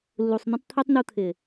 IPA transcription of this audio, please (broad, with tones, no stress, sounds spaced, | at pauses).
lː u˨ sˤ n̪ ɛ̃˦ tˤ t̪ʰ ɛ˦ tˤ n u˧ t̪ʰ ɪ˨